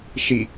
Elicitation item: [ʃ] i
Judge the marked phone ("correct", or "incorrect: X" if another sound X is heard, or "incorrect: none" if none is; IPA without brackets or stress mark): correct